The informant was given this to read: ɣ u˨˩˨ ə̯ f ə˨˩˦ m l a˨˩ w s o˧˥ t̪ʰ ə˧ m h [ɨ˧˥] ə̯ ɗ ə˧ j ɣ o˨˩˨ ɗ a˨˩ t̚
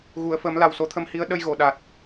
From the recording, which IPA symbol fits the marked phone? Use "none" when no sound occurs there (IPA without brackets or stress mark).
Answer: i˧˥